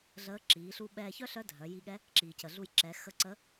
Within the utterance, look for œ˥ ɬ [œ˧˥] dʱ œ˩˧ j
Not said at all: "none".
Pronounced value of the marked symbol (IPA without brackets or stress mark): œ˧˥